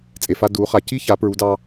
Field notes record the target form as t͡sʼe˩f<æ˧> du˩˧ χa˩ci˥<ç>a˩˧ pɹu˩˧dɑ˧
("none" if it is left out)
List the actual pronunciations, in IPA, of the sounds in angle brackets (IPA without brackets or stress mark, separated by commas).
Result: a˧, ç